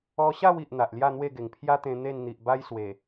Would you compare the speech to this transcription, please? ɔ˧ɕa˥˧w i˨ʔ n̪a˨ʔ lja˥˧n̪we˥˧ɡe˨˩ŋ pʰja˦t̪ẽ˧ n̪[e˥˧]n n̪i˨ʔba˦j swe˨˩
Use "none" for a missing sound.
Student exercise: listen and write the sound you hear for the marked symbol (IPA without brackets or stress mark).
e˥˧